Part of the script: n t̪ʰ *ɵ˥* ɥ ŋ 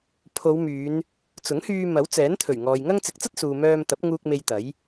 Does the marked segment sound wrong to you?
yes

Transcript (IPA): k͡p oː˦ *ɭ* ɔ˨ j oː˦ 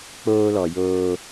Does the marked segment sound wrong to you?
yes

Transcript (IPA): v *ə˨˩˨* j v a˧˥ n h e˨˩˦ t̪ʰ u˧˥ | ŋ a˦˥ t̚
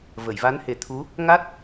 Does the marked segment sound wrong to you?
no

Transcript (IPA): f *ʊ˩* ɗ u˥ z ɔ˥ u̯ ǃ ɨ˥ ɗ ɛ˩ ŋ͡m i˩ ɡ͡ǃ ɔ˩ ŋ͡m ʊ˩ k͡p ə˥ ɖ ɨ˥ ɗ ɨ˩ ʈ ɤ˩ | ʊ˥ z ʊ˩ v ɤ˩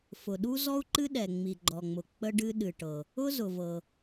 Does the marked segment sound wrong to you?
no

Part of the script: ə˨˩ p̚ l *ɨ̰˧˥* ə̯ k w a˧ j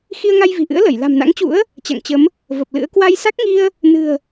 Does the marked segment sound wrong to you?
no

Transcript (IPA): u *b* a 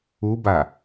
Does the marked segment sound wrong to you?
no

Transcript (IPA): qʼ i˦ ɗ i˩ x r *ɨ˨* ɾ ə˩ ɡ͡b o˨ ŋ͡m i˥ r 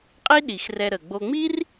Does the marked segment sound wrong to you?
yes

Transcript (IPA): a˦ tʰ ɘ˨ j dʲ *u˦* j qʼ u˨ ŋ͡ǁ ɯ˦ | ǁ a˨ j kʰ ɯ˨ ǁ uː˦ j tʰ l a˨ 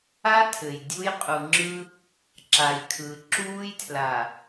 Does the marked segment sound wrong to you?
no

